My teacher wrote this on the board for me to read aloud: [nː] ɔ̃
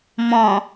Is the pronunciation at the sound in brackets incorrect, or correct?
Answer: incorrect